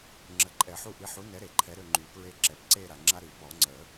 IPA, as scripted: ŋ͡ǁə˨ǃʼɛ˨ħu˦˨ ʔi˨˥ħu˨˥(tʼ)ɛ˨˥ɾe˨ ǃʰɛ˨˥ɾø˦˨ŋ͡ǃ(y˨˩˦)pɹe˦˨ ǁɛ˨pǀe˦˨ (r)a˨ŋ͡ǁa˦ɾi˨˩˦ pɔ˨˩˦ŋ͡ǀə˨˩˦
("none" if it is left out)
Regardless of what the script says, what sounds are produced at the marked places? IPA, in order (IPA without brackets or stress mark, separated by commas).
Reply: n, y˨˩˦, ɾ